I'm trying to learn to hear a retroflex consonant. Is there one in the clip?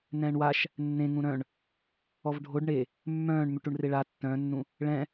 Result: yes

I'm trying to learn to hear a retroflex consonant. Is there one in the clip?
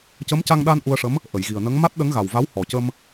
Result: yes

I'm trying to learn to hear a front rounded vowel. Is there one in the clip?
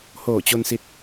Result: no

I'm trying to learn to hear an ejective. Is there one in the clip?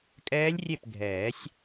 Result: yes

